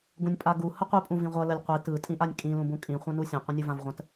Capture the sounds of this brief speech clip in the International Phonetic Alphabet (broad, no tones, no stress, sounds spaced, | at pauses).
ɡ ũ nʲ pʼ a ɡ u h ə qʷ i pʼ ũ v ĩ ʁʷ ʌ l ə lʲ qʷ i t ɯ tʼ ĩ ʔ a nʲ kʼ ĩ l ũ b ũ kʼ ĩ χʷ ã n u sʲ ã qʷ ə̃ nʲ u v ã v ʁʷ ə̃ t